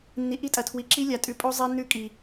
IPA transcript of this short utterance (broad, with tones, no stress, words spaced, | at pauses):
nːi˨ʔi˦tʼɐ˨ tʰwi˨ǁi˦ lʲa˨tʼʉ˨pʼo˦ zˤe˦nːʉ˦˨ kʼi˨